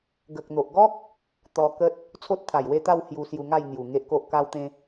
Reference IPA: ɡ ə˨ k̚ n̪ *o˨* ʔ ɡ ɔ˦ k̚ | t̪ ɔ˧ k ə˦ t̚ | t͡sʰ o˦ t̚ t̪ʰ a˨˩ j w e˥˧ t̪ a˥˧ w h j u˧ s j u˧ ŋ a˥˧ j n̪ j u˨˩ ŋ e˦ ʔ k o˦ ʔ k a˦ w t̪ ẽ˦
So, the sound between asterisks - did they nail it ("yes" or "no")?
yes